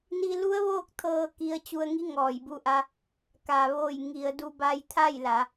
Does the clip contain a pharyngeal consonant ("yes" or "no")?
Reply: no